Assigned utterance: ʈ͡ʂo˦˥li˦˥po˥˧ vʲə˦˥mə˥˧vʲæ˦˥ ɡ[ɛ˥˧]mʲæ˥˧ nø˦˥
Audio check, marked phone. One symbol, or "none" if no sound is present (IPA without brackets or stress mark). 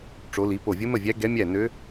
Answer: ɛ˦˥